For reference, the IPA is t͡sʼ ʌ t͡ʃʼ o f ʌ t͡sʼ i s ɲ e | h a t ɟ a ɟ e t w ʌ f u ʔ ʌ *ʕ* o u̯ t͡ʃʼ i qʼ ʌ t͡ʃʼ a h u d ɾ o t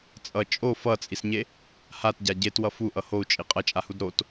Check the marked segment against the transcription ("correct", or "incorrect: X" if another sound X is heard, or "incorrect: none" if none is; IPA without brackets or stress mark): incorrect: h